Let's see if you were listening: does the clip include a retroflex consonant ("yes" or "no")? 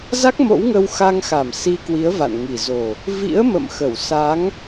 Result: no